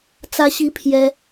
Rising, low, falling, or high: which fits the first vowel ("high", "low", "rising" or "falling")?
high